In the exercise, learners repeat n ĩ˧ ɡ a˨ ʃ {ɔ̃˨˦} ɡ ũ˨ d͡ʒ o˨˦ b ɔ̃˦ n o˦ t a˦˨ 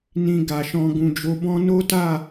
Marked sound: incorrect: ɔ̃˧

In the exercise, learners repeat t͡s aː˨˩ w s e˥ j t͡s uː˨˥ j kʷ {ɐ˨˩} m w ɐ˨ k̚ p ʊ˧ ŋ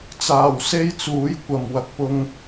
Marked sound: correct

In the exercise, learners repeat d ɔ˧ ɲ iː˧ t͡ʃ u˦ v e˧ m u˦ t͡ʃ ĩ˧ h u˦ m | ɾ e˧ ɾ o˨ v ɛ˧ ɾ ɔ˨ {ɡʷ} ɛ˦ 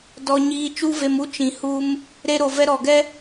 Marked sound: incorrect: ɡ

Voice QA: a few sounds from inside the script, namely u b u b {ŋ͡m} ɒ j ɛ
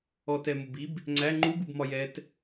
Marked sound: incorrect: m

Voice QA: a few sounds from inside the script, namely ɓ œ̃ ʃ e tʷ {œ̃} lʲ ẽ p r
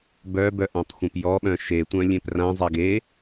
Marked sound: correct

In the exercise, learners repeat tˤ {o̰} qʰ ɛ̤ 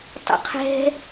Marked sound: correct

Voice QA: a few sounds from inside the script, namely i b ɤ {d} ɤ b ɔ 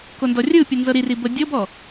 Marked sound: incorrect: dʲ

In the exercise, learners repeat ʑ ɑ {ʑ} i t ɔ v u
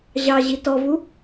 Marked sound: correct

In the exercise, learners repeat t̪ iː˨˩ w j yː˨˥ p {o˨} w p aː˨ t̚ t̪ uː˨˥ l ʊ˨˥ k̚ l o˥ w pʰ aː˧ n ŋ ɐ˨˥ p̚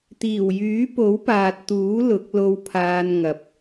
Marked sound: incorrect: o˨˥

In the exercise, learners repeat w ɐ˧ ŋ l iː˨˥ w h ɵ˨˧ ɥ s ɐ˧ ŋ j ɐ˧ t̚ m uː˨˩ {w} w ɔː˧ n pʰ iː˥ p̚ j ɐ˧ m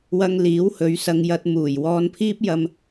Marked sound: incorrect: j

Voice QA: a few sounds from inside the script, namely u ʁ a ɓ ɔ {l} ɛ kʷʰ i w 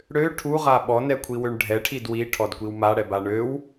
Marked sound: incorrect: n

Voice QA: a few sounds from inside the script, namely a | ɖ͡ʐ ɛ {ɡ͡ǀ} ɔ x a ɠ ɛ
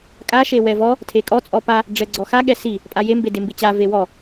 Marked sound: correct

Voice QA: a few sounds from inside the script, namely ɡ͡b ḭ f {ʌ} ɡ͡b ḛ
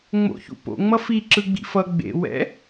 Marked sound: correct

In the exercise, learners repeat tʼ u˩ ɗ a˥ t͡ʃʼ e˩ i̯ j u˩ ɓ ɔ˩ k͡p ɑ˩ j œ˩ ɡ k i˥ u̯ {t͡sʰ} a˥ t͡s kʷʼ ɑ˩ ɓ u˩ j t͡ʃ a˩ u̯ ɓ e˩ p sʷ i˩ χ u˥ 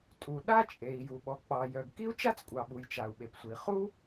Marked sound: incorrect: t͡ʃ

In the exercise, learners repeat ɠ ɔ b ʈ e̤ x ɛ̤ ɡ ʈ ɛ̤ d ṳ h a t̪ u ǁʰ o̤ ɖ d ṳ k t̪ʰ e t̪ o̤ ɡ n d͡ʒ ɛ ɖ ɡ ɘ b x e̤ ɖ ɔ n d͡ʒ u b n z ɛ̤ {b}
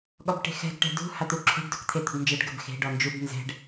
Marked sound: incorrect: ɖ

